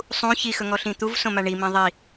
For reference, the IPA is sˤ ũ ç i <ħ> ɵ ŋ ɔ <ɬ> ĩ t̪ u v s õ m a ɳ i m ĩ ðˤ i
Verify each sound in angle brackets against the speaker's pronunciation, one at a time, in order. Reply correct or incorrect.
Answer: incorrect: x, correct

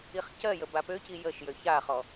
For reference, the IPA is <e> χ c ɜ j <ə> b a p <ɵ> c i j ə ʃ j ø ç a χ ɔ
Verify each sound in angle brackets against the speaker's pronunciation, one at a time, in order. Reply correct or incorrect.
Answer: incorrect: i, correct, incorrect: ø

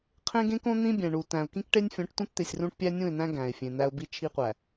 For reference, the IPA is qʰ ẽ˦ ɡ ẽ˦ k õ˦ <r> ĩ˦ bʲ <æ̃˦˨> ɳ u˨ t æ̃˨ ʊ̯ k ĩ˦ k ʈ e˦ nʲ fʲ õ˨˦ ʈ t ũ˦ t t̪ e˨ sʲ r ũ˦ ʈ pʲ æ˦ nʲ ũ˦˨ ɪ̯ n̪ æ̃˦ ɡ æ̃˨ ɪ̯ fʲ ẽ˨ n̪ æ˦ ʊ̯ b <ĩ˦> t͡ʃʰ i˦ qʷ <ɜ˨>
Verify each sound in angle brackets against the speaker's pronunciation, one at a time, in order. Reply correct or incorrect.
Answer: incorrect: n̪, incorrect: æ̃˨, incorrect: i˦, incorrect: æ˨

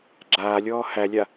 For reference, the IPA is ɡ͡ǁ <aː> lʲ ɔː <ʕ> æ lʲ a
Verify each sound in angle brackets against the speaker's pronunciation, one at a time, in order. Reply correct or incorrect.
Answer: correct, incorrect: h

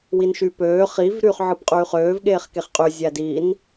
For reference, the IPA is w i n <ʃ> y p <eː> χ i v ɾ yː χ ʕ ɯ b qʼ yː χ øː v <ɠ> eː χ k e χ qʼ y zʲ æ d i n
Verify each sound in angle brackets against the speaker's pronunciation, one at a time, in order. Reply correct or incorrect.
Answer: correct, incorrect: øː, correct

